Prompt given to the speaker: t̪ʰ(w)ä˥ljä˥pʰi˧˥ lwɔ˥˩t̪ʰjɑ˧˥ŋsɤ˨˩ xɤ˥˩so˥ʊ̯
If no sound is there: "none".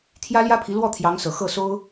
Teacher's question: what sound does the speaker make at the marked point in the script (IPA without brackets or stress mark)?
j